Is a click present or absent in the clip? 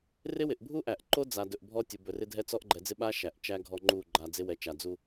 present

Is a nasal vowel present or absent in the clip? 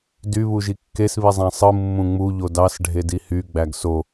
present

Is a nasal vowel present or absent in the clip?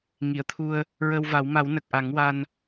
absent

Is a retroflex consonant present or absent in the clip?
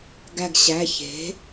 absent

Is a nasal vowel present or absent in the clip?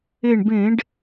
present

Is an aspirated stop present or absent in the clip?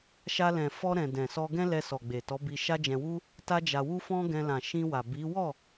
absent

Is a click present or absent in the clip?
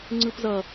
present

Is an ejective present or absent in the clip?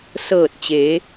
absent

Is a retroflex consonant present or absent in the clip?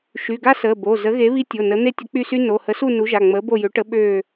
present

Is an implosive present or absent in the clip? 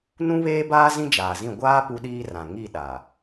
present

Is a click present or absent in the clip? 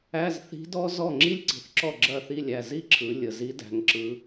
present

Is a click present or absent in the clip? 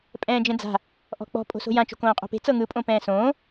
absent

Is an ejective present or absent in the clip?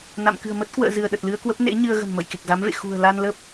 absent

